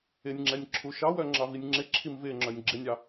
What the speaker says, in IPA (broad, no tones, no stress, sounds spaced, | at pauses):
ɪ nʲ ŋ͡ǁ ɛ nʲ ǁʰ u ʃ ɑ w œ ŋ͡ǁ ɑ v i nʲ ŋ͡ǁ ɪ ǁʰ i m v ɪ ŋ͡ǁ œ nʲ ɡ͡ǁ ɪ nʲ ɑ